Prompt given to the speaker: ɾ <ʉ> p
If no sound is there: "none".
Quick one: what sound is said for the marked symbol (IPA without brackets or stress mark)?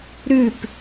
ʉ